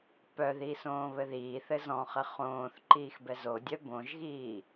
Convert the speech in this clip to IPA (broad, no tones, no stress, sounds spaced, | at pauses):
p œ ð i s õː β ɘ ð iː θ ɘ z ɔ̃ χ ɘ χ õː θ ǃ iː x b ɛ z o dʲ œ b õ ʒ ɣ iː